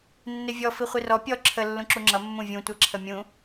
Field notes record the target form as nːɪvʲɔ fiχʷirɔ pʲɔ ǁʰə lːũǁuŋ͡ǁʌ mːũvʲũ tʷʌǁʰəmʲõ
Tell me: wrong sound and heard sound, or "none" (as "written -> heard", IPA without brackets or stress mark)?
õ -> ũ